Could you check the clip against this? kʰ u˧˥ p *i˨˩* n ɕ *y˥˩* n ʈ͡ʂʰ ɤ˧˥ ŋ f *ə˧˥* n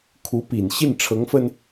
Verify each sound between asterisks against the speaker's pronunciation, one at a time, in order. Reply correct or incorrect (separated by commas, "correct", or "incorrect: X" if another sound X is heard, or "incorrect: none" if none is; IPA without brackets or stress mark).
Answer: correct, incorrect: i˥˩, incorrect: ə˧